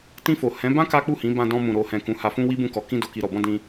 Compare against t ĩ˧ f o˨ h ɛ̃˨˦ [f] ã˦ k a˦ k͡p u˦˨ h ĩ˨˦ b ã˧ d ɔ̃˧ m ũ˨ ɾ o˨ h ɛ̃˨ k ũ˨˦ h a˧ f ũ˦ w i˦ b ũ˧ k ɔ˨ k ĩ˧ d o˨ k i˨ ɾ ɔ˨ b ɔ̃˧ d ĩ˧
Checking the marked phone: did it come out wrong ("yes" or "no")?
yes